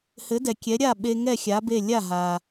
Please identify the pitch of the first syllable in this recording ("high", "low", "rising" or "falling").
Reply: rising